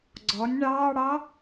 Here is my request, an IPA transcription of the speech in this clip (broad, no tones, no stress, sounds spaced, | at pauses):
ɡ͡ǀ ɔ nʲ ɳ ɑː ɽ ɑ